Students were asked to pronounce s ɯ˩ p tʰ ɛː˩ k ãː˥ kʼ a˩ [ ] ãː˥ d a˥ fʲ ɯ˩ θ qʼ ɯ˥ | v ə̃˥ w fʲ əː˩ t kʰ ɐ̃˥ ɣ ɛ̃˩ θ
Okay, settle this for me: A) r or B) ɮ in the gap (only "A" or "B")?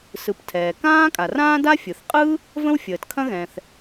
A